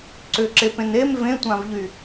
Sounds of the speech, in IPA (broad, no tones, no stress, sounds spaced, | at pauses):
ǀ ʏ ǁ e p ẽ n e m v ẽ tʷ ã v ʎ y